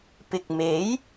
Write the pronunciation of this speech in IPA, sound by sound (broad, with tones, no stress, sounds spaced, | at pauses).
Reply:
p ɪ˨ k̚ m e˨˥ j